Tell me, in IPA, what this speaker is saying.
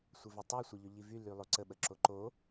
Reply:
sʷ ɘ v y tˤ y sʷ e ʎ ɵ ʎ i v y l y lˠ o ǀ ə ɓ ə ǁ o ǃ o

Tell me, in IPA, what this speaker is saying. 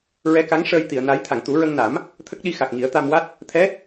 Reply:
ɹ ɛ˧˥ k a˧˥ ŋ ʂ əː˧ j t̪ i˨˩˨ ə̯ n a˧˥ j t̪ʰ a˨˩˨ ŋ t̪ u˨˩˦ ɹ ə˧ ŋ n a˨˩˦ m | t̪ʰ ə˦˥ k̚ ɗ i˧ x a˨˩ k̚ ŋ i˨˩˦ ə̯ t̪ a˧ m w a˦˥ t̚ | t̪ʰ ɛ˧˥

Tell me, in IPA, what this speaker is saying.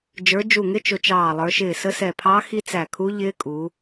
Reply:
d͡ʒ ə˞˨˦ d͡ʒ u˧˩ ŋ ɪ˦˥ t͡ʃ ʊ˨˦ t͡ʃ ɑː˧˩ lˠ ə˞˨˦ ʃ ɪː˧˩ s ə˦˥ s ɛ˧˩ pʰ ɑ˦˥ x i˦˥ t͡s æ˧˩ kʰ u˦˥ ʎ ɪː˦˥ kʼ u˨˦

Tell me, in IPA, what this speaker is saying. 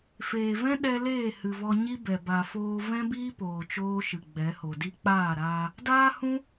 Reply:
f eː˨ v ɛ̃˦ ɗ ɛ˧ l eː˦˨ h ɨ˨ v ɔ˧ ɲ i˦ b ɛ˨ b a˨ f oː˧ v ɛ̃˦ b iː˦ p oː˨ t͡ʃ oː˧ ʃ ɨ˨ ɡ͡b ɛ˨˦ h o˨ d i˦ k͡p aː˦˨ ɾ aː˧ | d aː˦ h ũ˦

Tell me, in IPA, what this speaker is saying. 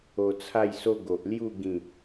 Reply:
o˧ t͡sʰ a˥˧ j s o˦ ɡ o˨ ʔ l j u˥˧ ɡ ĩ˥˧

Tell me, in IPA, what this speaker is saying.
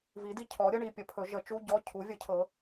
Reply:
v i˨˥ d i˧˥˧ cʰ ɔ˨˥ ɾʲ ə˧˥˧ ɳ i˧˥˧ pʲ ə˨˥ pʰ ɵ˨˥ ʒ ə˨˥ t͡ʃ u˧˥˧ ɟ ɔ˧˥˧ cʰ u˨˥ vʲ ə˨˥ cʰ ɤ˨˥

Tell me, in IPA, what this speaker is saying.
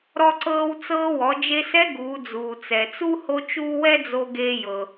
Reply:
ɾ ɔ˧ ǀ ɤː˧ w t͡s ɤː˧ w ɔ˩˧ d͡ʒ e˧ s ɛ˧˥ ɡ uː˩˧ d͡z uː˩ t͡s ɛ˩ t͡s u˥ h o˥ t͡ʃ uː˥ w ɛ˥ d͡z o˧ ɡ eː˧ j ɤ˩

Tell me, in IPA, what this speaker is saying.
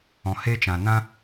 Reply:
ɔ̃˨ h e˦ t͡ʃ ã˨ n ã˦

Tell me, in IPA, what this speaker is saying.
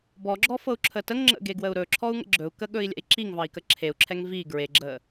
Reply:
b ɔ ɡ͡ǁ ɔ f ɤ u̯ ǁʰ ə t ə ŋ ŋ͡ǁ ə̰ ɡ e ɡ w ə u̯ ɾ ɵ ǁʰ ɔ u̯ ŋ ə̰ ɡ͡ǁ ɵ u̯ k ə ɠ ɵ i̯ lʲ ɛ̰ i̯ ǁ i ŋ v ɑ i̯ k ə ǁʰ e u̯ ǁʰ ɛ ŋ v i ɡ ɹ e ɡ͡ǁ ə

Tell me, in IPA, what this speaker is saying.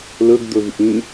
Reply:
l ɵ ɡ d̪ ɵ v ʔ ĩ

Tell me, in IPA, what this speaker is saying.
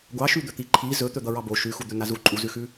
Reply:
ɡʷ ɑ ʃ ʉ d̪ ɵ t̪ i ǃʰ i z ɵ t̪ ɵ d̪ ʌ ɹ ɑ b o ʃ ʉ x u d̪ ɵ n a z u ǃʼ u z ʉ x ʉ

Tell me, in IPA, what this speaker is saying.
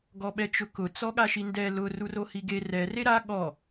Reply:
ɡ ɔ ɓ ɛ t͡ʃ ʊ k ʊ t͡s ɔ ɠ a ʃ i n d ɛ l ʊ r u r o h i ɡ e r ɛ r e ɾ a ɠ ɔ

